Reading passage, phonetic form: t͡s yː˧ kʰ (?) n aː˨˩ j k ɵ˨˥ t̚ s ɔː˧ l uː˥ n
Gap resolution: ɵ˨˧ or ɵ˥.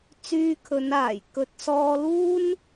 ɵ˨˧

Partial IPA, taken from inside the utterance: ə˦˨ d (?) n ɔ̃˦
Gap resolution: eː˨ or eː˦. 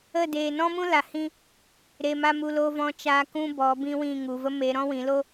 eː˨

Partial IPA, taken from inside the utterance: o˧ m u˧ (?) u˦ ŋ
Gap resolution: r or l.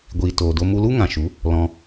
l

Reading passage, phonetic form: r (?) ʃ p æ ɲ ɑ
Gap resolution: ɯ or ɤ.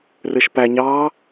ɯ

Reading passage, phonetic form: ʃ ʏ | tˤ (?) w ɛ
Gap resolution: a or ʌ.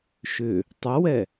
ʌ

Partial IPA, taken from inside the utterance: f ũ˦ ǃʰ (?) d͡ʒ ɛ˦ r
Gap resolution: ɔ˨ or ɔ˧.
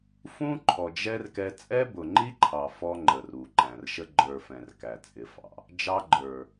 ɔ˨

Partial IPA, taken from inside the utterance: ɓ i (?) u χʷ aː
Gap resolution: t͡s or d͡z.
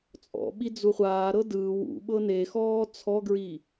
d͡z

